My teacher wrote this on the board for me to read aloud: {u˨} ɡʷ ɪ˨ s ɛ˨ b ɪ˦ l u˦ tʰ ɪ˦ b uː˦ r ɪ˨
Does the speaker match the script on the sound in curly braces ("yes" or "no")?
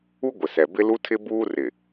no